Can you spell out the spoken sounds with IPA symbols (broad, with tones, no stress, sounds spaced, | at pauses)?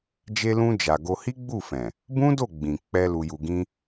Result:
d͡ʒ e˧ l ũ˧ d͡ʒ a˨ ɡ o˧ h i˦ ɡ͡b u˦˨ f ɛ̃˨ | b ũ˦ d o˦˨ ɡ͡b ĩ˨ k͡p ɛ˧ l u˧ j u˧ ɡ ĩ˦